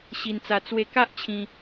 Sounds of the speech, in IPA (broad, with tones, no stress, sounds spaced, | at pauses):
ɕ i˧ n t͡s a˧ t͡s w e˧ k a˦ ʔ t͡ɕʰ ĩ˧